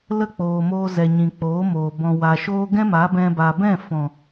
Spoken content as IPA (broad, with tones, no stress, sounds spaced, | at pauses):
l ə˦˨ k͡p oː˨ m oː˧ z ɛ˨ ɲ ĩ˨ k͡p oː˨˦ m oː˨ b ɔ̃˨ w a˨ ʃ oː˦ ɡ ɛ̃˦ m a˨˦ b ɛ̃˧ b a˨ b ɛ̃˦˨ f ɔ̃˨